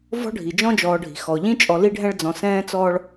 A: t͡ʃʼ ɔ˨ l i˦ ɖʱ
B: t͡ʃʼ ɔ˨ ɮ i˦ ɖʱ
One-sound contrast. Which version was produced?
A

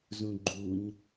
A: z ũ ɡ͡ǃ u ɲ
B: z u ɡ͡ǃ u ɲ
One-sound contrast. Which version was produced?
A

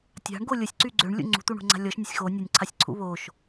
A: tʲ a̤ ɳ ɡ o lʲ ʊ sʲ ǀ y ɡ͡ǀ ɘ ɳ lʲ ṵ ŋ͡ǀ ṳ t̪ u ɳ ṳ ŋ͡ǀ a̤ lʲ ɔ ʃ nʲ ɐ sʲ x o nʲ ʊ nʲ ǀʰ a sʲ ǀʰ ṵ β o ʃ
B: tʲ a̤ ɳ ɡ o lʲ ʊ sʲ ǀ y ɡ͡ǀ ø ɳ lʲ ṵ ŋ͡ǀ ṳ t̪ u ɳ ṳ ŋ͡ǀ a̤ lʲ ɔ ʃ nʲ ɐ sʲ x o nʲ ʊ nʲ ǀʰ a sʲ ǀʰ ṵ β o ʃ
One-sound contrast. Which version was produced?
B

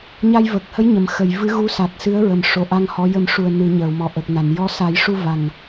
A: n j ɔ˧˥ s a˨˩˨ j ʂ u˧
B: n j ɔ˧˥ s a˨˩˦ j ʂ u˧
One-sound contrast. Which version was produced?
B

